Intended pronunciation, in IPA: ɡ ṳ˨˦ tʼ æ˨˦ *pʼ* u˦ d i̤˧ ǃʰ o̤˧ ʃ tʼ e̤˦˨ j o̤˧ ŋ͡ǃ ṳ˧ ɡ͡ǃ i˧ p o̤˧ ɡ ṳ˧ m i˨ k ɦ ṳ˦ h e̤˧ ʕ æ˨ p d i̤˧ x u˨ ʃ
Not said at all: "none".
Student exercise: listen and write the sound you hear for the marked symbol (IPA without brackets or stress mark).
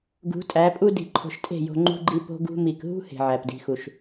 pʼ